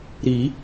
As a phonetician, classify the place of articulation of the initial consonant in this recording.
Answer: alveolar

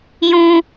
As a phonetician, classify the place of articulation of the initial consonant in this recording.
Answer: palatal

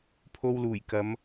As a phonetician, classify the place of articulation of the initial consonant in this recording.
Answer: labial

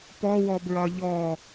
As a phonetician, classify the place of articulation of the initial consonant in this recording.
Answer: labial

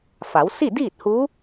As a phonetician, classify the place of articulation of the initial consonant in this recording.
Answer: labial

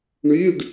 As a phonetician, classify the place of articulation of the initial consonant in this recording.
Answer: retroflex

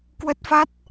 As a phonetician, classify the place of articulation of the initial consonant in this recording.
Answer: velar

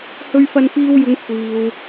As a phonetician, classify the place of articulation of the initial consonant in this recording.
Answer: glottal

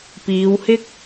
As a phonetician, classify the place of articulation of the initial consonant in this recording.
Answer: labial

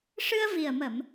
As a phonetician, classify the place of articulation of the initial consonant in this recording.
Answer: retroflex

